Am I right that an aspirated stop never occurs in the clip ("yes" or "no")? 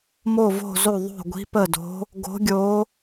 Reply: yes